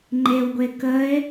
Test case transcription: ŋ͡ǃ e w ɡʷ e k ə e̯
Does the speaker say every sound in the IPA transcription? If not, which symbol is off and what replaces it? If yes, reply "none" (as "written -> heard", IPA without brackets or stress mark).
none